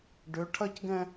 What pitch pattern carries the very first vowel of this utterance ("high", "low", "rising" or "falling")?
rising